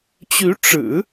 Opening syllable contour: rising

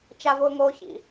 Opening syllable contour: high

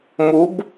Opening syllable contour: rising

